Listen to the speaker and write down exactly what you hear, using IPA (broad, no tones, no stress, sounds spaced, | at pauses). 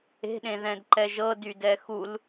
e̤ ɗ ẽ ð ɛ̃ d ǃ ɛ ʒ ɤ d y d ɛ x u l